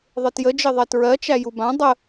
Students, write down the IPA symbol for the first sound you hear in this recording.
ðˤ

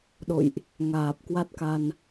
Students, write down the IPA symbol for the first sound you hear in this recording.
ɗ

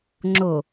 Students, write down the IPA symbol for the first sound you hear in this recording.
ŋ͡ǁ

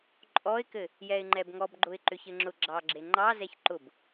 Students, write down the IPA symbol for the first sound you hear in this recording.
ǃʼ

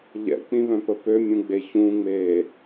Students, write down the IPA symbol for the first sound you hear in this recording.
ʎ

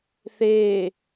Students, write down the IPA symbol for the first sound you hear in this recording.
θ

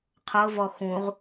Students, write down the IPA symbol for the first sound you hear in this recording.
qʰ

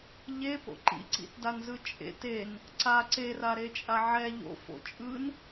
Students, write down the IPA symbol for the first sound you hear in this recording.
ʎ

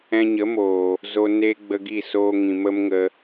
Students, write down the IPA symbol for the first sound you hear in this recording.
ɛ̃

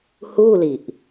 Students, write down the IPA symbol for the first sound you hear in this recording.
h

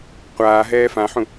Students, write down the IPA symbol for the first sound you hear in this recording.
qʷ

